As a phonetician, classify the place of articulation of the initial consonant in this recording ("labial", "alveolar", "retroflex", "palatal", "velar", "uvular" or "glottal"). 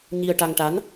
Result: palatal